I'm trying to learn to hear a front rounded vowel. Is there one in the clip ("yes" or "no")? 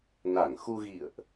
no